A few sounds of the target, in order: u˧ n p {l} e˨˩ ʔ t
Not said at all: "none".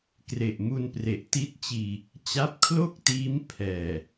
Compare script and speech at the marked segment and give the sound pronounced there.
r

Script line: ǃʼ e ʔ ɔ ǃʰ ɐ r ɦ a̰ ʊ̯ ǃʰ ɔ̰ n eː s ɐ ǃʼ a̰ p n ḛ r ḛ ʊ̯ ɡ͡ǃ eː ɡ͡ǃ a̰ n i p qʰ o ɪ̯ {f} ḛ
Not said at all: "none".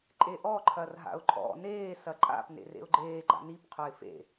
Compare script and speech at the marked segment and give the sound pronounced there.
f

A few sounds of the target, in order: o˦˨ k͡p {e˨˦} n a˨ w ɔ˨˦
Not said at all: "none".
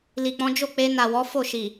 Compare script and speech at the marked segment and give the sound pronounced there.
e˧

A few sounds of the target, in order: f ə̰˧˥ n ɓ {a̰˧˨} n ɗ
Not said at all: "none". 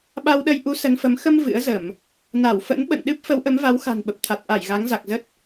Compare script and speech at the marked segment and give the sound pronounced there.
ə̰˧˨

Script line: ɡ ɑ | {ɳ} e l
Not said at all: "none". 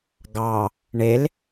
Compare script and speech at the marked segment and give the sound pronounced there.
ɳ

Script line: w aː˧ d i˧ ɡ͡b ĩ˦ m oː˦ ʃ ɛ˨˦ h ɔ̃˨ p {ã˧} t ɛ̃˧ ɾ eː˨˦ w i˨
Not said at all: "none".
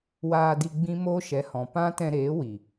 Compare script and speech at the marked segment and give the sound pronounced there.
ã˦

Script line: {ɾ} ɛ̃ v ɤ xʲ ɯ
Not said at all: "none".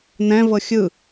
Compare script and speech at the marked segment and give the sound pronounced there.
n̪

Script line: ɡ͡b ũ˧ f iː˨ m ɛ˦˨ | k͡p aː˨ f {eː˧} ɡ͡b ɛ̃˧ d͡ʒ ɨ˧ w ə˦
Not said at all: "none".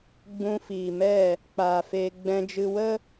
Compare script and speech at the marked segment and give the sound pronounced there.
eː˧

